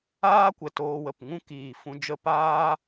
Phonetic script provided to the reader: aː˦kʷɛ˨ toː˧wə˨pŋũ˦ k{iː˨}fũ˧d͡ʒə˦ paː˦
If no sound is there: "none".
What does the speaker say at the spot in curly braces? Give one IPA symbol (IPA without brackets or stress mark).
iː˨